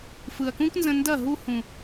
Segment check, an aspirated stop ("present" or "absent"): absent